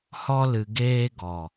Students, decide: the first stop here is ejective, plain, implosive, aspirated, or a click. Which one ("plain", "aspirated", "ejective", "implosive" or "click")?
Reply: plain